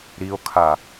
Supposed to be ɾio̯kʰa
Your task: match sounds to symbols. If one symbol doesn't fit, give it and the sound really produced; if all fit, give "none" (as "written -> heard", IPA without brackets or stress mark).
none